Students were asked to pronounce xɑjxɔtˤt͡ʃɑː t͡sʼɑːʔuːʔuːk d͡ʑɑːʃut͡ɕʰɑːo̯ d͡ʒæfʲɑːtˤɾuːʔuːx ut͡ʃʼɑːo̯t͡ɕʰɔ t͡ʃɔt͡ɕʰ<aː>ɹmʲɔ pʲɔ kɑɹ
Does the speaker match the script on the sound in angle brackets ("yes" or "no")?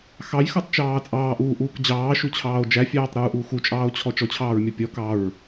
no